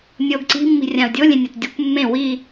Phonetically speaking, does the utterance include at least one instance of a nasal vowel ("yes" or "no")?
yes